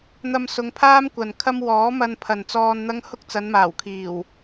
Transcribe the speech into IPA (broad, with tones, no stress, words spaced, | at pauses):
n̪ɐ˧msʊ˨˧ŋpʰaː˥m kʷɐ˨nkʰɐ˥m wɔː˨˥mɐ˧n pʰɐ˨nt͡sɔː˧nn̪ɐ˥ŋ hʊ˥k̚t͡sɐ˨˧nmaː˨˩wkʰiː˨˩w